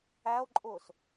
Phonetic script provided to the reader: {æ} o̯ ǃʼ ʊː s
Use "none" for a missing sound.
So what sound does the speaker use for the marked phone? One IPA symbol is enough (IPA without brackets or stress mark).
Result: æ